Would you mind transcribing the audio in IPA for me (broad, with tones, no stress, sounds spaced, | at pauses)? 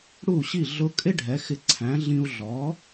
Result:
ɽ u˥˩ ɕ i˥˩ ɮ ʊ˧ kʼ ɪ˥ ɖʱ ɛ˩˥ x ɪ˧ ǀʰ æ̃˩˥ ɮ ĩ˧ u̯ ɮ ɔ˩˥